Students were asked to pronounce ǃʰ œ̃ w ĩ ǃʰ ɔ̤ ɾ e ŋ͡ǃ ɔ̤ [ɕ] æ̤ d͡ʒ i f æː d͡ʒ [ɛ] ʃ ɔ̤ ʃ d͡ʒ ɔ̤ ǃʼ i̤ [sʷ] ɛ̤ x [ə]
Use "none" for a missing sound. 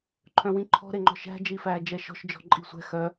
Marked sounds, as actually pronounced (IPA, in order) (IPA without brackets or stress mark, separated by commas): ʃ, ɛ, sʷ, œ